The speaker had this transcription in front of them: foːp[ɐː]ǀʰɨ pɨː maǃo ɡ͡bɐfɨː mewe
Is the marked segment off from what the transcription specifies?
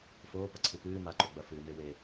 yes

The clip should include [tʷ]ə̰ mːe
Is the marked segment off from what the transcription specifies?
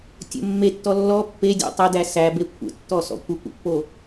yes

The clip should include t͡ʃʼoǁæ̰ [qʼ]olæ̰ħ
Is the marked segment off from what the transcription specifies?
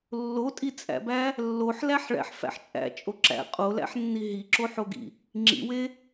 no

